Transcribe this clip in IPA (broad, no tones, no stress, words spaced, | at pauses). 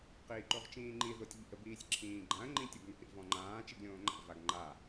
qiːǃoʁt͡ʃĩːŋ͡ǃi ðotʲʎḭə̯ biːsʲǁʰĩːɡ͡ǃãə̯ ŋ͡ǃĩtʲʊɡno̰ ɾḭvɔ̃ŋ͡ǃãː t͡ʃiɡlʲõːŋ͡ǃa̰ vaɡŋ͡ǃa